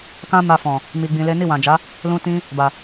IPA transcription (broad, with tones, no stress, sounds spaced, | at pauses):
k ã˦ m a˧ f ɔ̃˨ | m i˧ ɡ͡b ĩ˧ l e˦ n i˦˨ w ã˨ d͡ʒ a˨˦ | l ũ˦ t ĩ˦ | b a˨